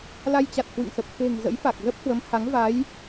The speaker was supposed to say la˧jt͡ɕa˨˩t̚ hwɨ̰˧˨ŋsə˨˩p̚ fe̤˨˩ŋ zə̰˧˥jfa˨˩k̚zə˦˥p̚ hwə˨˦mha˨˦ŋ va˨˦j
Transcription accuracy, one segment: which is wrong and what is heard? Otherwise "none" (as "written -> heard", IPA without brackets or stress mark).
none